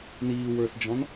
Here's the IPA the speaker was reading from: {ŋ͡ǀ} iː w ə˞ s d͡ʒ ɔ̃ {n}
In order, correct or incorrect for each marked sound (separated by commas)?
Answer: incorrect, correct